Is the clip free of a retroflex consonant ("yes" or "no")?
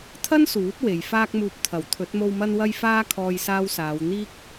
yes